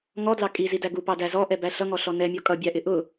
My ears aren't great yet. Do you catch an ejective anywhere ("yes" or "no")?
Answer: yes